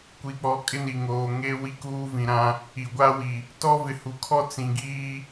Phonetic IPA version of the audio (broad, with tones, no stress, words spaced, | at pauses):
kʷi˨k͡pɔ˨ kʼɪ˦ni˨ŋoː˨ ŋe˦ wi˦kuː˦vĩ˨ɾã˦ | i˨ɡʷa˦wi˨ | tɔ˦vɪ˨hu˨kʰɔ˦ t͡sĩ˨ɡiː˦